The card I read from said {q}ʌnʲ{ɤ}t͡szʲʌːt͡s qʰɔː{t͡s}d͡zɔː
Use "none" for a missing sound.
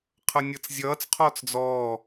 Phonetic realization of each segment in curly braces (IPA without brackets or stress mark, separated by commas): qʰ, ɤ, t͡s